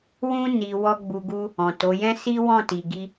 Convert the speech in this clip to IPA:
w ũ˧ n i˨ w ɔ˧ ɡ͡b u˨ ɡ u˧ | ɔ̃˨ t o˨˦ j ɛ̃˦ s i˦ w ɔ̃˦˨ t i˨ ɡ i˧

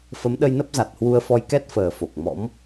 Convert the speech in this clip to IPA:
f ə˨˦ m ɗ ə˧ j n ə˦˥ p̚ z a˨˩ t̚ h w u˧ ə̯ f ɔ˧ j k ɛ˦˥ t̚ f əː˨˩ f o˨˩ k̚ m ɔ̰˧˥ m

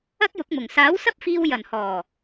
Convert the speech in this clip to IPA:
ɐ˥ k̚ j ʊ˨˥ k̚ m ʊ˨˩ ŋ s aː˨˥ w s ɐ˥ p̚ f iː˧ w j ɐ˨˩ n h ɔː˨˩

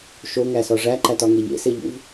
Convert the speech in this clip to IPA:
ʃ o ŋ æ s ɒ ʐ æ ǃ æ t ɒ ŋ e ʎ ḛ s e ʎ ṵ v

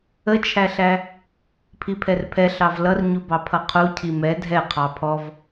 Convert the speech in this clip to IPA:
ə t͡ʃʰ æ ɬ æ | pʰ i pʰ ɛ r pʰ ɛ ɬ ɑ v l ʌ r ɲ u b ɑ pʰ ʌ qʰ u cʰ i m ɛ dʱ ɛ qʰ ɑ pʰ ɔ v

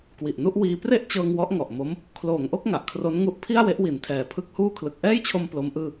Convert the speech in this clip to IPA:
k w i˨˩ ʔ n u˥˩ ʔ w iː˧ p r e˥˩ ʔ t͡ɕ ɤː˧ ŋ w ɔ˦˥ ʔ ŋ ɔ˨˩ ʔ m o˦˥ m | kʰ l oː˩˦ ŋ ʔ o˥˩ k̚ ŋ a˨˩ ʔ kʰ r o˦˥ n ŋ u˥˩ ʔ pʰ i˥˩ a̯ w e˦˥ ʔ w i˩˦ n tʰ ɛː˨˩ pʰ ɯ˦˥ k̚ h uː˥˩ kʰ l ɯ˨˩ k̚ ʔ ɛː˥˩ j t͡ɕʰ o˧ m p l o˦˥ m ʔ ɯː˥˩

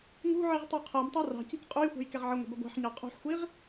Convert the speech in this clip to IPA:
ŋ ṳ ʕ i ʁ tˤ u qʰ ɜ m tˤ ɜ r ɑ̤ c i̤ k qʼ u j xʷ ɛ̤ j k ɛ ʁ ʕ ə ŋʷ ə̤ b ə ɡʷ ɑ̤ ħ ɲ ɑ qʼ ṳ ħ xʷ i ʁ

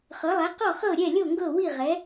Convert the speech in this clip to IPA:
χ ɤ˩˥ lˠ ɛ˩˥ q ɔ˥˩ χ ɤ˥˩ ɾʲ ɛ˥˩ lʲ o˥˩ ŋ ɡ ɤ˥˩ w i˥˩ ʁ ɛ˩˥

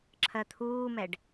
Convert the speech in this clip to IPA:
ǁʰ ɜ t̪ʰ uː m ɛ ɖ

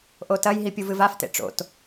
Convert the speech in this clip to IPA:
ʔ o t ɐ j ɦ i pʲ u v ɨ v a f t ḛ ʈ͡ʂ o̰ t

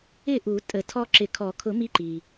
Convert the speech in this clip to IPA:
ɪ˥˩ ʔ u˨˩˦ tʼ ə˨˩˦ tʰ ɔ˦ ǁ ɪ˨˩˦ kʰ ɔ˨˩˦ kʰ ʊ˨˩˦ m i˨˥ ǃ i˩

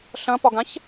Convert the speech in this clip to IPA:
ɬ ɐ̃ p ɒ ɡ ã ç

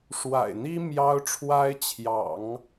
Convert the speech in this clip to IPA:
ʂ w a̰˨˩ ɪ̯ n̪ i˥ m j ɑ˥ ʊ̯ ʈ͡ʂʰ w a˥ ɪ̯ t͡ɕʰ j ɑ̰˨˩˦ ŋ

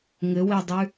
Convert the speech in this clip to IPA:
ŋ ɘ w e dˤ ʉ

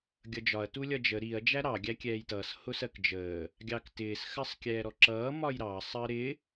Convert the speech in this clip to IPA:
ɡʲ ʌ d͡ʒ ɒ ɐ̯ t u lʲ ʌ d͡ʒ ə ɾ i ɐ̯ d͡ʒ æ ɾ ɑ ɡʲ æ kʲ ɛː j t ʌː s h ʊ s ɜ k d͡ʒ əː | ɡʲ ɑ k t ɪː s x ɜ sˤ kʲ ɛː ɾ ɔ ǁ ʌː m ɒ j ɾ ɑ sˤ əː ɾ ɪ

